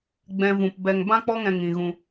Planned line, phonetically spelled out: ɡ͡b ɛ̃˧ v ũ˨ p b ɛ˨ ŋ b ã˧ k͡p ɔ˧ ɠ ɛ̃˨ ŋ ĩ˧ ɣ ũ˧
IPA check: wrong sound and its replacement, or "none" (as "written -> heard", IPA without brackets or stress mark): ɠ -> ŋ